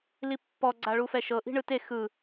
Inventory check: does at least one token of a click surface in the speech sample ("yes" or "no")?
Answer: yes